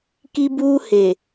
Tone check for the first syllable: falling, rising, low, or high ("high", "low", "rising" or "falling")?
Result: high